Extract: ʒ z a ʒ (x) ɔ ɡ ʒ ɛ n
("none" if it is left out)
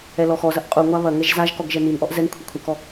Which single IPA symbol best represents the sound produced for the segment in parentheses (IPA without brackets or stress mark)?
k